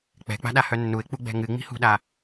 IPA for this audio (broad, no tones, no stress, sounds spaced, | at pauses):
k͡p ɛ̤ k͡p a̤ ɗ a h œ nː u ɪ̯ k͡p u ɡ͡b ɛ̤ ŋ ɨ ŋ͡m i̤ h ṳ ɗ a